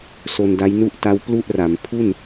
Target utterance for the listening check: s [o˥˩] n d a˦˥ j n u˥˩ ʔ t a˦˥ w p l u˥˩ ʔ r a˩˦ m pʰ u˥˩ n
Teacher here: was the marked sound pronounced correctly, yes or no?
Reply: no